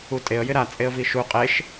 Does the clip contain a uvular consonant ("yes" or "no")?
yes